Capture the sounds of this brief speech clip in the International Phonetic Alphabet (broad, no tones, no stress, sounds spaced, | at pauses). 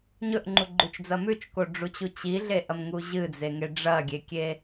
ɲ ɵ ʔ ŋ͡ǃ u ɡ͡ǃ ʉ t͡ʃ d͡z ɐ m ʉ t͡ʃ k o ɖ͡ʐ u t͡ɕ u t͡ɕ i ɮ e ʔ ɐ m ŋ u ʑ ɨ d͡z e ŋ e ɖ͡ʐ ɐ ɡʲ e kʲ e